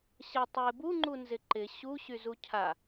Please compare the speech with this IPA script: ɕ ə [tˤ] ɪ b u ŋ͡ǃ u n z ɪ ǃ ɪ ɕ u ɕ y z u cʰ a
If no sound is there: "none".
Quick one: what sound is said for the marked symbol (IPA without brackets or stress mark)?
tˤ